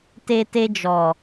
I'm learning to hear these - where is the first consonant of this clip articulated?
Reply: tongue tip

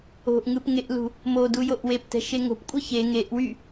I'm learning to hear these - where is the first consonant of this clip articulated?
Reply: throat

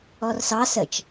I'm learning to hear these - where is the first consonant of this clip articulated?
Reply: tongue tip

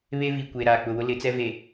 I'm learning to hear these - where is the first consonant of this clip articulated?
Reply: lips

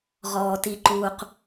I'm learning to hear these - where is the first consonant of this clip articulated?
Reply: uvula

